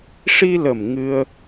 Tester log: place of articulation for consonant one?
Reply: retroflex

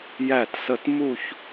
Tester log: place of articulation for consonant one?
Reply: palatal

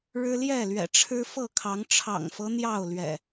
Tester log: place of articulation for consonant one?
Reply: retroflex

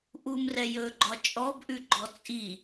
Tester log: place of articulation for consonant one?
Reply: glottal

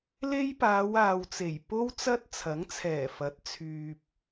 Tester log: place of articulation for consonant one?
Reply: alveolar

